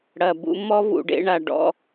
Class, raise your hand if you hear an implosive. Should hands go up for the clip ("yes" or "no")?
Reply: no